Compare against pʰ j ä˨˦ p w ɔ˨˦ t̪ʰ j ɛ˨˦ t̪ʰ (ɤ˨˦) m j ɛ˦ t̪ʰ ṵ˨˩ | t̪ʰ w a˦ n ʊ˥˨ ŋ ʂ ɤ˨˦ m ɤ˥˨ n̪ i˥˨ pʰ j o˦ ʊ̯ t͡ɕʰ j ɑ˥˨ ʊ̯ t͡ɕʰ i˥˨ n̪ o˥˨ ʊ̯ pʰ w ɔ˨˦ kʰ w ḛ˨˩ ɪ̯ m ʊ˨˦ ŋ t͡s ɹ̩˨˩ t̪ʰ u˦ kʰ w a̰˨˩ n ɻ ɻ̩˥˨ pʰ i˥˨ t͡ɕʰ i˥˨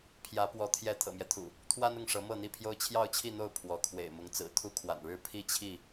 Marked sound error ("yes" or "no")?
yes